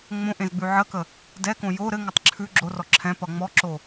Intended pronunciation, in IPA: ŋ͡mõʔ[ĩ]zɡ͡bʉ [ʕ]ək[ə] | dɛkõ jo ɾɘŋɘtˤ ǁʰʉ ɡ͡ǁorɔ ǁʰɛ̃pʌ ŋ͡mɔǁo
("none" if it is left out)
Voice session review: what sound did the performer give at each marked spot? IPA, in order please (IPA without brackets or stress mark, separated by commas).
ẽ, ʕ, ə